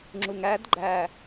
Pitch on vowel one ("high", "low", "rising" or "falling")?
low